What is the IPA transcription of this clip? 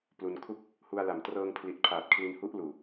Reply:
plu˧n kʰu˥˩k̚ | hu˧a̯la˨˩m trɤː˧ŋ pʰli˨˩t̚pʰaː˨˩t̚ kʰli˧nhu˦˥ʔluː˨˩

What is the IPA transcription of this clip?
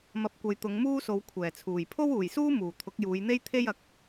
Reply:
mɐ˨p̚kʷɐ˨j t̪ʊ˨˧ŋmuː˥so˨˧w kʷʰɛː˨˩t͡sʰuː˨˩j pʰo˥wuː˨˩jsuː˥ muː˨˩ t̪ʰʊ˨˥k̚juː˨˧jn̪e˥j t̪ʰe˥j ɐ˨˥k̚

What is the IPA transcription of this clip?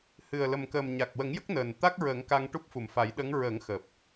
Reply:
hɨ˨˩ə̯lə˨˩mkəː˨˩m ɲa˨˩k̚wə˨˩˦ŋjə˦˥k̚ nəː˨˩n t̪a˦˥k̚ ɹə˨˩˦ŋka˧ŋ ʈu˦˥p̚fu˨˩mfa˨˩˦j ɗə˧˥ŋ ɹə˨˩˦ŋxəː˨˩p̚

